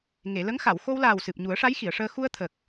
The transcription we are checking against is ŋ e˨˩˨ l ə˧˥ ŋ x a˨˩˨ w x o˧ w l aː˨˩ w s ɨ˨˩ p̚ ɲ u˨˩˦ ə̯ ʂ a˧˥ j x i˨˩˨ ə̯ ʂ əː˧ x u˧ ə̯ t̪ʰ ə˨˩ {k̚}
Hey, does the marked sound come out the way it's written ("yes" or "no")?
yes